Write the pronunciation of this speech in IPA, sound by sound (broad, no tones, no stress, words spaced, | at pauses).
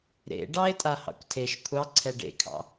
ɾḛ ɖɑe̯tʼahɑ̰kʷtʰeʃ kʷʰɑǀʰɛ ɖḛkʰɑ̰